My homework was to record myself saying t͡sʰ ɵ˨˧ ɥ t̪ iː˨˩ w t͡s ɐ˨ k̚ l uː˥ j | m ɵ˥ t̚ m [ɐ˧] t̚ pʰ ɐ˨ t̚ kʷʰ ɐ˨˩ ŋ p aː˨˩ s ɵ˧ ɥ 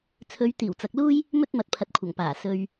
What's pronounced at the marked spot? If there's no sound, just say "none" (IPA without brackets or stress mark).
ɐ˧